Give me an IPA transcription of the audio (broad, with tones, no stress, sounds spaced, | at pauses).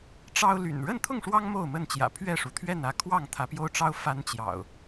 ʈ͡ʂ ɑ˦ ʊ̯ l y̰˨˩ n ɻ ə˥˨ n t̪ʰ ʊ˥˨ ŋ ʂ w ɑ˦ ŋ m o˥˨ ʊ̯ m ə˥˨ n t͡ɕ j ä̰˨˩ pʰ ɥ ɛ˥˨ ʂ u˩ t̪ʰ ɥ ɛ˥˨ n ä˦ kʰ w ɑ˥˨ ŋ t̪ʰ ä˨˦ p j o˦ ʊ̯ ʈ͡ʂ ɑ˦ ʊ̯ f a˦ n t͡ɕ j ɑ̰˨˩ ʊ̯